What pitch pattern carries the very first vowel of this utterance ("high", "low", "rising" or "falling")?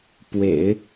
low